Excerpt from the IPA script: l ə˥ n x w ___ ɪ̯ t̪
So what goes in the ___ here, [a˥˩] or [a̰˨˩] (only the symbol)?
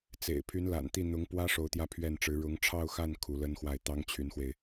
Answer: a˥˩